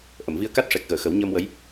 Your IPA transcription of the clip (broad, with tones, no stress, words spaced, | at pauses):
ʔə˨˩˨mvi˧ə̯ka˦˥t̚ ʂɛ˨˩k̚ɣəː˨˩˨xə˨˩˦w ɲəː˧mwə˧˥j